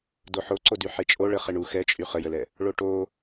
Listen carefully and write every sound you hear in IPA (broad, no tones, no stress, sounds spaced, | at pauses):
d o ħ o ǀ o d y ħ e t͡ʃʼ o ɭ ə χ e ɳ u x ɛ t͡ʃʼ y χ ə j ə l ɛ | ɭ o ʈ o